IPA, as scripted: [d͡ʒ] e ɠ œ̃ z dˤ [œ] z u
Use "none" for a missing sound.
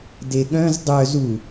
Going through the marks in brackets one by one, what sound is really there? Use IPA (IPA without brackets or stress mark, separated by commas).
d, œ